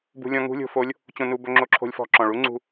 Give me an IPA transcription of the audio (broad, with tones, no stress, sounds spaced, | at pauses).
b ṳ˧ lʲ ɔ̃˧ ŋ ṳ˧˥ lʲ o̤˧ f o˧˥ lʲ | t͡ɕ õ˧ n u˧ b ɵ˧ ŋ͡ǁ o˧ ǁʰ o̤˧ lʲ f ɔ̤˧ ǁ ɔ̃˩ ɭ u˧˥ ŋ͡ǀ ṳ˧